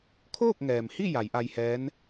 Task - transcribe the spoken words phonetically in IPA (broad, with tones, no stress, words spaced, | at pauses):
kʰoː˥˨k̚ŋɛː˩mhi˥˨ ja˩˧jʔa˧jhɛː˧˥n